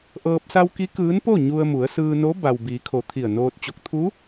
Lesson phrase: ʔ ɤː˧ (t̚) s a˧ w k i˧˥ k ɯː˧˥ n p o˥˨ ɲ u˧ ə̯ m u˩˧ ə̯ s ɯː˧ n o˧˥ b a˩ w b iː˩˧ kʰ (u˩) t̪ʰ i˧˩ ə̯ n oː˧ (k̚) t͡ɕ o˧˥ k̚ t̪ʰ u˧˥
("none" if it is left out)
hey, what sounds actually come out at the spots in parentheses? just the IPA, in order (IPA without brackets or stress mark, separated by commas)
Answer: p̚, o˩, t̚